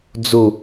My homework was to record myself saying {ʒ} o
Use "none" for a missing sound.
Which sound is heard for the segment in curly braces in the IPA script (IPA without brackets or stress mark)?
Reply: d͡z